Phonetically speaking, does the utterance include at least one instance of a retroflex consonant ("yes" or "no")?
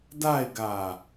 no